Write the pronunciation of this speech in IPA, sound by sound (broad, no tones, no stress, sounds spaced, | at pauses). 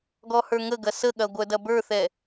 ɡ ɔ h ə˞ ŋ ə ɡ ɐ s ə ɠ ɐ ɡʷ œ d ɐ b ə˞ θ ɛ